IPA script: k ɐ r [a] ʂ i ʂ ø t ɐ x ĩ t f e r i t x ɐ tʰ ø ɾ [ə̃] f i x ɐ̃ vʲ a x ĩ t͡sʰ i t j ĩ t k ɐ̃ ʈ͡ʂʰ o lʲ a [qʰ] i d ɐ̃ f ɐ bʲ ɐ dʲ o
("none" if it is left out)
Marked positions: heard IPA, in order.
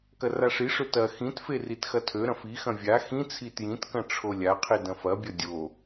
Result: a, ɐ̃, qʰ

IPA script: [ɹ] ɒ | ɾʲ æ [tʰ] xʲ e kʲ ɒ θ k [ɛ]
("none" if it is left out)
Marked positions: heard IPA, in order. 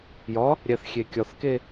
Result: j, θ, e

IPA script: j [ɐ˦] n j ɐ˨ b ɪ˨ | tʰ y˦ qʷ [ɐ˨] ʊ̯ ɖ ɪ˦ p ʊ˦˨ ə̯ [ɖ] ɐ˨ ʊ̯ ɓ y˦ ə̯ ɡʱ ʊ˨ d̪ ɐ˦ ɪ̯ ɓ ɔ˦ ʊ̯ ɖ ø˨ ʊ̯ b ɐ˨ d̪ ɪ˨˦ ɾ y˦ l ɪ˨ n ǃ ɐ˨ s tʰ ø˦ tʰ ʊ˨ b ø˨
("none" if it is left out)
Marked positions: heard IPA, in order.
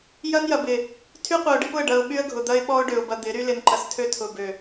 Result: ɐ˦, ɐ˨, ɖ

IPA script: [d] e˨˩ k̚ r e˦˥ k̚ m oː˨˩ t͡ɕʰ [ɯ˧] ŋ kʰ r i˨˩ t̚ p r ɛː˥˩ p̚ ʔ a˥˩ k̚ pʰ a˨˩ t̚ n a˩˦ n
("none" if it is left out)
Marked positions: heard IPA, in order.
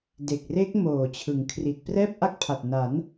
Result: d, ɯ˩˦

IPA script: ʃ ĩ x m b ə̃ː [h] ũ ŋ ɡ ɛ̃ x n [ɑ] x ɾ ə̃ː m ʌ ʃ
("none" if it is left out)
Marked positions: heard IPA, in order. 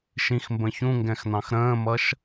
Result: ç, ɑ̃

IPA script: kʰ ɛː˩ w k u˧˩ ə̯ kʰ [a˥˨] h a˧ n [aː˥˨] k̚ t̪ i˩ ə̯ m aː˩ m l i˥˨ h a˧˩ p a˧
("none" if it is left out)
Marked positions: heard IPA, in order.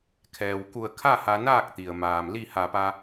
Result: a˥˨, aː˥˨

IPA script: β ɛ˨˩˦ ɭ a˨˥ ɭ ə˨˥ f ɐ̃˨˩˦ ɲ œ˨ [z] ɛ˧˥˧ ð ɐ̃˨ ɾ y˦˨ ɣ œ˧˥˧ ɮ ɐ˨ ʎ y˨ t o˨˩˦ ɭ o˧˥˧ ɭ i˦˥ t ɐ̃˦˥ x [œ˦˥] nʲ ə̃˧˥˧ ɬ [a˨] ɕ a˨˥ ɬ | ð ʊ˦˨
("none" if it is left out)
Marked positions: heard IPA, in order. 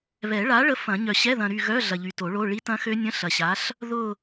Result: ɕ, ø˦˥, ɐ˨

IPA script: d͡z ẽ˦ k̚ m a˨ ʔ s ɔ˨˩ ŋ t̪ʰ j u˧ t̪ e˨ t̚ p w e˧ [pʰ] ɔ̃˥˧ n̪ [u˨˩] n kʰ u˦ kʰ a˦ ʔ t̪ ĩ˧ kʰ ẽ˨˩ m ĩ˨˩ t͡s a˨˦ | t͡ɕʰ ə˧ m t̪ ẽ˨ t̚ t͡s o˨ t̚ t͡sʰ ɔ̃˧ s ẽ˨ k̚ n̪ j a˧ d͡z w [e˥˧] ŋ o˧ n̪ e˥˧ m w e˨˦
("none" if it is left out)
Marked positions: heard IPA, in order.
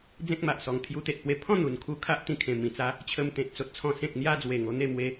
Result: pʰ, u˨˩, e˨˩

